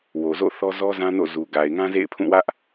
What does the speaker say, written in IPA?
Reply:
w o˨ z o̰˦˨ θ ɔ˦ z ɔ˦ z ã˦ n o̰˦˨ z u˨ ɡ a˨ ɪ̯ ŋ ã˦ z ḛ˦˨ ɪ̯ pʰ ũ˦˨ w ä˦ ʔ

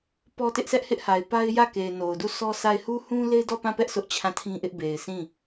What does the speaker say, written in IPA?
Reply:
p ɔ˦ t ɪ˦ ʔ sʰ ɛ˦ ʔ h ɪ˦ ʔ h a˨ ɪ̯ p a˦ ɪ̯ j ä˦˨ k e˨ ɪ̯ n o˨ ʊ̯ d u˦˨ sʰ ɔ˦ sʰ a˦˨ ɪ̯ h u˦ h ũ˦ l e˦ ɪ̯ d ɔ˦˨ p ã˦˨ p ɛ˦ ʔ sʰ ʊ˦ ʔ t͡ɕʰ ã˦˨ tʰ ĩ˦ ʔ ɪ˦ ʔ b e˨ ɪ̯ sʰ ĩ˦˨

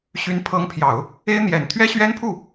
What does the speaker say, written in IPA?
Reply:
ɕ y˧˥ n pʰ ɤ˧˥ ŋ pʰ j ɑ˨˩˦ ʊ̯ | e˥ ɪ̯ n̪ j ɛ˨˩ n t̪ʰ ɥ ɛ˥ ɕ ɥ ɛ˥ n pʰ u˥˩

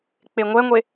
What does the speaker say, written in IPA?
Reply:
k͡p e ŋʷ ɛ ŋʷ e

